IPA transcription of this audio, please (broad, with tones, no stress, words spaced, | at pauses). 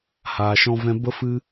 haː˧ʃɔ̃˦vɛ̃˦ bə˦fɨ˦